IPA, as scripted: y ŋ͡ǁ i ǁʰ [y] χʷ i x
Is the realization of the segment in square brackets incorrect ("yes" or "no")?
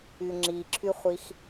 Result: no